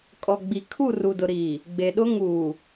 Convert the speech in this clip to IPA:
kʼ ɔ˨ ɡ͡b i˨ kʰ u˦˨ r u˨ d ʊ˨ ɾ iː˨ | ɡ͡b e˨ ɗ ʊ˦ ŋ uː˨

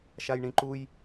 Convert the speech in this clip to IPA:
ʃ a j ɳ ĩ ǃ u j

